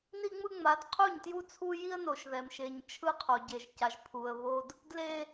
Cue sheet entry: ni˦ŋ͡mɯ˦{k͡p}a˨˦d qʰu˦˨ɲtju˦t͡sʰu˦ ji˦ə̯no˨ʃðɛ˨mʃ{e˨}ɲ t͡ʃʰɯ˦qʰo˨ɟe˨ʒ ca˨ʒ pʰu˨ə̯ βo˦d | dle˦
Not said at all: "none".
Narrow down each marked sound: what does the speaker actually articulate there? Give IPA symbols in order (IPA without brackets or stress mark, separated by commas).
ŋ͡m, e˨